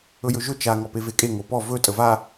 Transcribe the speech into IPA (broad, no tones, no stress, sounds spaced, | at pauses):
ɵ j ɵ ʒ ɵ t͡ʃ a ŋ ɔ p e v e kʼ e ŋ o p ɔ v ɵ tʼ ə v a